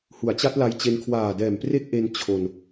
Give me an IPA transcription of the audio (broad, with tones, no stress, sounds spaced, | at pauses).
h u˩˦ a̯ t͡ɕ a˦˥ t̚ l a˧ j t͡ɕ e˧ n kʰ w aː˨˩ d ɛː˨˩ m p r e˦˥ k̚ ʔ e˧ n t͡ɕʰ o˧ n